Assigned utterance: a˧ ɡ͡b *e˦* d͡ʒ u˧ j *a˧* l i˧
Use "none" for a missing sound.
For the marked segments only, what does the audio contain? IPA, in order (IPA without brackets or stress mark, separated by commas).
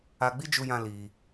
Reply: i˦, ã˧